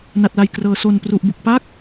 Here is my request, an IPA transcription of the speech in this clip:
na˨˩t̚la˨˩jkrɤː˩˦ so˨˩npru˨˩ʔbu˨˩k̚ pa˥˩k̚

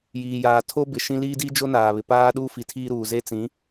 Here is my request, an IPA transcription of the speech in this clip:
jiː˨jaː˨tʰo˦ bɪ˨ʃĩ˦ liː˦di˦d͡ʒo˦ naː˨βɪ˨paː˦ɗuː˦ fi˨tʰiː˦ɾuː˨ ze˦t͡sĩ˨˦

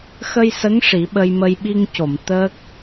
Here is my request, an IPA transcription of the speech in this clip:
xə˧jsə˧˥ŋ ʂi˨˩˦ɓə˧jmə˧j ɓi˧ŋco˨˩˨m t̪əː˦˥k̚

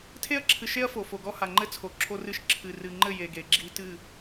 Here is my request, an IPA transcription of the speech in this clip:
tʰe˦ɐ̯ǁʰɨ˨ʃe˦ɐ̯ fo˨fo˨ɡɔ˦ha˨ ŋ͡ǃɘ˦t͡sʰo˨ ǁʰo˦rɨ˦ʃ ǁʰɨ˨ rɨ˨ŋ͡ǃɘ˦˨ je˨ɡe˨ɡ͡ǁi˦ tɨ˦˨

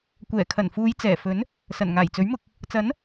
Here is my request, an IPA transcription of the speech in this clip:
kʷɛː˨˩kʰɐ˨˩nfuː˨˧j t͡sɛː˨˩fɵ˨˥n | sɐ˨˩nŋaː˨˩jt͡sɵ˨˥ɥmʊ˧k̚ | t͡sɐ˨˥n

